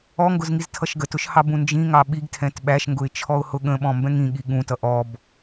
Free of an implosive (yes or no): no